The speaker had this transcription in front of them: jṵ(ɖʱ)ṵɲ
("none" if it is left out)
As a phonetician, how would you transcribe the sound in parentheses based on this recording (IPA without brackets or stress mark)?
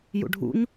ɖʱ